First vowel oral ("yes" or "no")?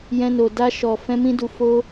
no